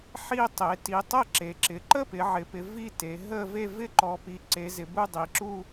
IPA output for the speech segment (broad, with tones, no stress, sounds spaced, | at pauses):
ħ i˥˧ tˤ e˩˧ t i˩˧ tˤ ə˥˧ ǁ e˩˧ ǁ ɪ˩˧ ǃ ə˥˧ p ɪ˩˧ ʕ ɪ˩˧ p ɪ˩˧ v i˥˧ t e˩˧ ɦ ə˥˧ v e˥˧ v ɪ˥˧ ǃ ɔ˩˧ p i˩˧ ǀ e˩˧ z ɪ˩˧ b u˥˧ dˤ i˩˧ ǁ u˥˧